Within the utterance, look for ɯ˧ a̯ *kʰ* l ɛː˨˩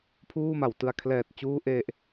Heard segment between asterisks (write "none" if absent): kʰ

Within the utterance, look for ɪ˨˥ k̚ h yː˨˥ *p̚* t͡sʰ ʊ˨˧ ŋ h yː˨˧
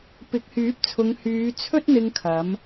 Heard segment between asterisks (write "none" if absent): p̚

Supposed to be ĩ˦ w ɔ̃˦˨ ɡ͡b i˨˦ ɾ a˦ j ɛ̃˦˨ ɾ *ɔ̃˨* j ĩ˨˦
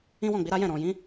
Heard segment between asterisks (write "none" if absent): ɔ̃˨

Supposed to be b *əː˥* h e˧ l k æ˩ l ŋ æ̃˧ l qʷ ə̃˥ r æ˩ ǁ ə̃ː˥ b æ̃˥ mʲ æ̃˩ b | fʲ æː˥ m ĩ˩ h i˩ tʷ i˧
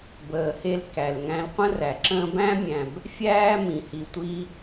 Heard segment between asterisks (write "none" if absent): əː˩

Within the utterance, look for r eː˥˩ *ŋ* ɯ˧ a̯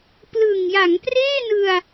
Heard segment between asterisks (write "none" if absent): n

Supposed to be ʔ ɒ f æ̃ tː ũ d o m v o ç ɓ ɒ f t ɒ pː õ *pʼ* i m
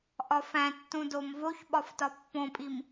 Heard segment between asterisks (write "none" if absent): pʼ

